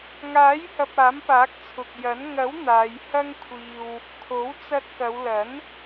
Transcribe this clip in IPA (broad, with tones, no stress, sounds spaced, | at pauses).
ŋ aː˨˥ j h ɐ˨ p̚ aː˨˥ m p aː˨˥ k̚ t͡sʰ ʊ˨ k̚ j ɐ˨˥ n ŋ ɐ˨˥ w n̪ aː˨˧ j h ɐ˥ ŋ kʷʰ iː˧ w | kʰ o˨˥ w t͡s ɐ˧ t̚ k ɐ˨˧ w l ɐ˨˥ n